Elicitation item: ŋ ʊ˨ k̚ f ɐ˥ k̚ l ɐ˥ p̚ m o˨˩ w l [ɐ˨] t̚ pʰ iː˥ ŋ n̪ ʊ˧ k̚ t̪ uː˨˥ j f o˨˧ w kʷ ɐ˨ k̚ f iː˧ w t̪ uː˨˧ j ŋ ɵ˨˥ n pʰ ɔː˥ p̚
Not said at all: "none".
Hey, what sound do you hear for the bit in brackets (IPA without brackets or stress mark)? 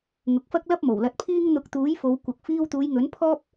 ɐ˧